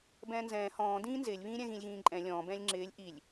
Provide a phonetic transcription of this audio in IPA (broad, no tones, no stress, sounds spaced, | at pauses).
b ɛ̃ː n z ɛ̃ː h ɔ̃ː d ĩː n z ɪː lʲ β ĩː ɾʲ ɛ̃ ɣ ĩː lʲ ɣ ĩː ǃʼ ɛ̃ lʲ ɔ̃ː b ɛ̃ː lʲ ŋ͡ǁ ɪː lʲ ʔ i lʲ